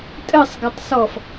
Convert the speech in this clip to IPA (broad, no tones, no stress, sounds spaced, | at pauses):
tʼ ɘ sˤ ɡ ɐ tˤ s ɔ f